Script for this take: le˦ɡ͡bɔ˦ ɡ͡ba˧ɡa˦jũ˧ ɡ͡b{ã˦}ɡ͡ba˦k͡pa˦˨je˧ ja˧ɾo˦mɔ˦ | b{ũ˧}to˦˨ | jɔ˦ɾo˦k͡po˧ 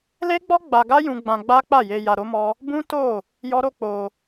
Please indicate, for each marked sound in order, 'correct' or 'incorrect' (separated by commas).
incorrect, incorrect